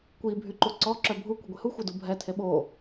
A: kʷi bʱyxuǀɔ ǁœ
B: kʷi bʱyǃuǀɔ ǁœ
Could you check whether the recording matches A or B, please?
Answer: B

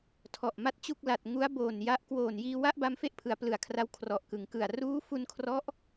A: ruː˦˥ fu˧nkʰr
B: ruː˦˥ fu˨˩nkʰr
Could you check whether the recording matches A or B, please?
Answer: A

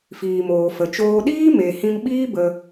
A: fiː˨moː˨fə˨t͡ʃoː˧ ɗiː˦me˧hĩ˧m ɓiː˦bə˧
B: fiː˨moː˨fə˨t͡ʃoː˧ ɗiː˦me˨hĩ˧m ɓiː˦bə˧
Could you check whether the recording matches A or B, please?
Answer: B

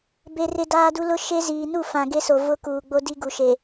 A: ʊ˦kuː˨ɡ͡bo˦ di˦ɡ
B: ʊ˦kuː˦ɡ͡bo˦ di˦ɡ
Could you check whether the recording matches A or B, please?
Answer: A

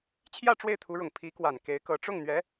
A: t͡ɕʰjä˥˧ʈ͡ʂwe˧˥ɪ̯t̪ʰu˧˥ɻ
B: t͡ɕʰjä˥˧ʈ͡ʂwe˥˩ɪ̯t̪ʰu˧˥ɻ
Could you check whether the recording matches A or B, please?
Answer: B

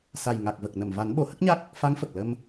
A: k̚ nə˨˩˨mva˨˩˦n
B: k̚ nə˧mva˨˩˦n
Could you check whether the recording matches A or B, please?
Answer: A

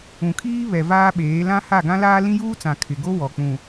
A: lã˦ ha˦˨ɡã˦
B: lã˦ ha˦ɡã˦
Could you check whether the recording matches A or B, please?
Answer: A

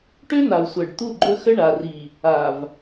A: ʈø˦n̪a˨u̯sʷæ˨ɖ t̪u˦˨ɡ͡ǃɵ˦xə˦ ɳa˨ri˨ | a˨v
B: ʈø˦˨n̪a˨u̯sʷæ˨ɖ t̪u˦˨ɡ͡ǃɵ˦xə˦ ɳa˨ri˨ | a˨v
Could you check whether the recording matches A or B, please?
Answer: A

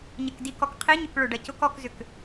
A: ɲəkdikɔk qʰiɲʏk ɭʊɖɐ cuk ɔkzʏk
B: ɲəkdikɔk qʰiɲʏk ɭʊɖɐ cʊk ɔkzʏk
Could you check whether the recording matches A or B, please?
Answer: B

